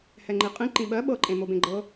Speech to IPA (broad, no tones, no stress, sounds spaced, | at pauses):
h ɛ ŋ͡ǃ i qʼ ĩ ǃ ĩ ɓ ɜ ɓ ɤ ǃʼ ẽ m o b ẽ ɡ͡ǃ ɤ